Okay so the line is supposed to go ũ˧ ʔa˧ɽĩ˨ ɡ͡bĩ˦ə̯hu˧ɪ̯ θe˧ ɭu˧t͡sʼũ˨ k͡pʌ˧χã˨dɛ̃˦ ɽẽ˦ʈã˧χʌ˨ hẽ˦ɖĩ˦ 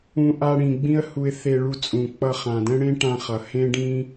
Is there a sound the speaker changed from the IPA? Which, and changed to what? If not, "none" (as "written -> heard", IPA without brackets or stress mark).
none